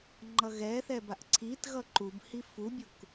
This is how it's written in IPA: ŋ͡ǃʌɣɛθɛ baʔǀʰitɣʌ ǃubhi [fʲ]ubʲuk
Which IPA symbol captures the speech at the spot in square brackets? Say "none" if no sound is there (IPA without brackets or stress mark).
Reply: f